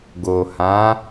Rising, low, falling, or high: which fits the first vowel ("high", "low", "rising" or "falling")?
low